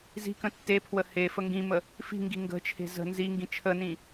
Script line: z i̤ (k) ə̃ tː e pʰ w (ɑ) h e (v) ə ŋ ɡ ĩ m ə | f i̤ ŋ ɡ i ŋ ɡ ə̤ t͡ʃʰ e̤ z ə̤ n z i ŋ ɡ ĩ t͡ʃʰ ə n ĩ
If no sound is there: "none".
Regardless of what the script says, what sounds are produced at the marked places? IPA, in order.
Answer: k, ə, f

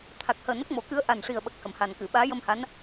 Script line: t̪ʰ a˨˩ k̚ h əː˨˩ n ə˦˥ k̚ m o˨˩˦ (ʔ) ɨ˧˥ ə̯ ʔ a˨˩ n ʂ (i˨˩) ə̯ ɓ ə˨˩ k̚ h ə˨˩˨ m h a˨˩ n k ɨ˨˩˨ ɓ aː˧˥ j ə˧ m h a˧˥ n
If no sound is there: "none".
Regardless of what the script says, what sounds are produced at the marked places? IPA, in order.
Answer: k, i˨˩

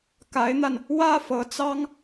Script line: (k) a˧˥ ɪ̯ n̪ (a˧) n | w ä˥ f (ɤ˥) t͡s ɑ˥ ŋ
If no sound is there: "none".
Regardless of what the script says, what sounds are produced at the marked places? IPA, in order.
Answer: k, a˧, ɤ˧˥

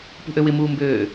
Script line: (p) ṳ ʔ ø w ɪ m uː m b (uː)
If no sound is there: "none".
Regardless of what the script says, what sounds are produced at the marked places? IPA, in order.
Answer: p, øː

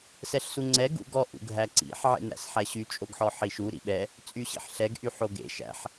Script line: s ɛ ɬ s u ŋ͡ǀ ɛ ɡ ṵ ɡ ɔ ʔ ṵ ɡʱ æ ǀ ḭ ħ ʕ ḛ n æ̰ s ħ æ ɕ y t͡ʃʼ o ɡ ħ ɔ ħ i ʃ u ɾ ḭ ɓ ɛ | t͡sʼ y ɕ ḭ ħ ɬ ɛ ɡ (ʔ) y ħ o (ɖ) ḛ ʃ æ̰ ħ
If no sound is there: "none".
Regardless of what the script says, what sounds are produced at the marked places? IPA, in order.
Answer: ʔ, ɡ

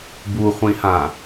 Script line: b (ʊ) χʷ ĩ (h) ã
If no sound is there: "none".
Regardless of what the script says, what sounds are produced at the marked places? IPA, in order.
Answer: u, h

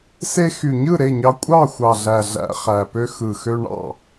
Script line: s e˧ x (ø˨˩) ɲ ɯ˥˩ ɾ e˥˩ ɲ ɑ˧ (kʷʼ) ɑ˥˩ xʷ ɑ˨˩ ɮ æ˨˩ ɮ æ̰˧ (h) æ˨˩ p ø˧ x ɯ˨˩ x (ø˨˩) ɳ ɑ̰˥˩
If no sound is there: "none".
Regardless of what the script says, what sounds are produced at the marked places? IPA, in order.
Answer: y˨˩, kʷʼ, χ, ø˧

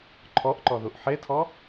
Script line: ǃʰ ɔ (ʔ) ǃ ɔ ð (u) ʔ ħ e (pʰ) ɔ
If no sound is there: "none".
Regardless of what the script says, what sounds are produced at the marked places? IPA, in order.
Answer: ʔ, u, tʰ

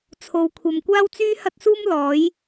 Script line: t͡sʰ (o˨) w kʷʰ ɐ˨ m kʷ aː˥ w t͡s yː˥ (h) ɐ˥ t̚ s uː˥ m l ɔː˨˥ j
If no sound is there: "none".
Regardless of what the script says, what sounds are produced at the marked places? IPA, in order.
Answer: o˨, h

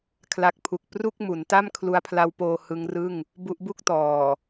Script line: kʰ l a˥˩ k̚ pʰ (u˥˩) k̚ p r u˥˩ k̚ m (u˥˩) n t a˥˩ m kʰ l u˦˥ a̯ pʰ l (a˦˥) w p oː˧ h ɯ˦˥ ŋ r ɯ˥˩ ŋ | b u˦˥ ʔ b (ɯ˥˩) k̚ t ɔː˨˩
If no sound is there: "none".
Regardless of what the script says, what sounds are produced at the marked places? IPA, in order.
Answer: u˦˥, u˩˦, a˦˥, u˥˩

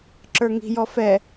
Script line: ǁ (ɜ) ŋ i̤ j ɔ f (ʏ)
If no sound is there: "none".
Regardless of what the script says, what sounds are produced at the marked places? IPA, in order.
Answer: ə˞, ɛ

